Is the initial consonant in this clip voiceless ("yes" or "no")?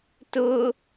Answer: yes